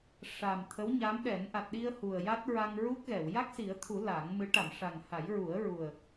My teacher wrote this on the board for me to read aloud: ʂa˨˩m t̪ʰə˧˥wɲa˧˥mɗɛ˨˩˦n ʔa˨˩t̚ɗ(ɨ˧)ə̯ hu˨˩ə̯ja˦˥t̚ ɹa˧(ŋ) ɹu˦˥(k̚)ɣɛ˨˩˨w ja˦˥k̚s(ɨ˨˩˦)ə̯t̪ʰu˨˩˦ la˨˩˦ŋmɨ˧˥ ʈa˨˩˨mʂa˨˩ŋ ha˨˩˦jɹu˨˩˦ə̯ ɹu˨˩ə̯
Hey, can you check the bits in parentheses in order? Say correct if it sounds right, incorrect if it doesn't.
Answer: incorrect: i˧, correct, correct, incorrect: i˨˩˦

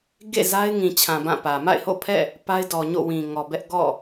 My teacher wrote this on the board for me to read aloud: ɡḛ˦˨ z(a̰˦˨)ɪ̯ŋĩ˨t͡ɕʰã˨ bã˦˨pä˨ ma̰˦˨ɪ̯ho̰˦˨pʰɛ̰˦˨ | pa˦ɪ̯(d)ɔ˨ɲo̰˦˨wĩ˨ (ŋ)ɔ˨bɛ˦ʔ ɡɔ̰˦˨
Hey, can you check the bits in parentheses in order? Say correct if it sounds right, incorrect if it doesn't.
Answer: incorrect: a˦, correct, correct

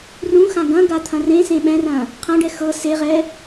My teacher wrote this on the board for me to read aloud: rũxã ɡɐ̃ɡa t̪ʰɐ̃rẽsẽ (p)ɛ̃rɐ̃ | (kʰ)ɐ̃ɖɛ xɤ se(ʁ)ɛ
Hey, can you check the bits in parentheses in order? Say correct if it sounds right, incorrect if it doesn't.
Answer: incorrect: ɓ, incorrect: qʰ, correct

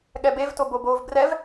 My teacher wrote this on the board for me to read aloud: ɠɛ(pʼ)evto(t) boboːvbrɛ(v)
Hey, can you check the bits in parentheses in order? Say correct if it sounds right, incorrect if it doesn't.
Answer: incorrect: b, incorrect: none, correct

